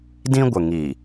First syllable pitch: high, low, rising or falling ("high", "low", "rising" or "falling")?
high